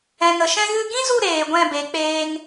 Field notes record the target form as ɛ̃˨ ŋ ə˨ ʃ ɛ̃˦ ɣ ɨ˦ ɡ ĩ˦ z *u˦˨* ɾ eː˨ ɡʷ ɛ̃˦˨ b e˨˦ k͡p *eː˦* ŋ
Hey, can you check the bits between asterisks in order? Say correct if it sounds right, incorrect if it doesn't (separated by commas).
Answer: correct, correct